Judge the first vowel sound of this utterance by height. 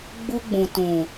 high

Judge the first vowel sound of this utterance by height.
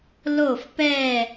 mid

